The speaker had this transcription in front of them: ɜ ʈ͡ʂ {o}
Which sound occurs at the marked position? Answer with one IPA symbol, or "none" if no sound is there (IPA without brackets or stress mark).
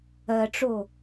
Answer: o